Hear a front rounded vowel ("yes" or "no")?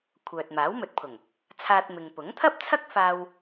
yes